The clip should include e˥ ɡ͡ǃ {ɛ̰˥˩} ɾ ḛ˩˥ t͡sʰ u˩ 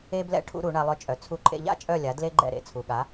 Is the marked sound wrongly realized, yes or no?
no